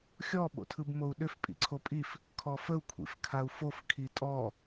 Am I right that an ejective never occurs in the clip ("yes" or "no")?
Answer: no